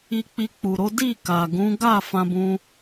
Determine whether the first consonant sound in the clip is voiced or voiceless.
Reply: voiceless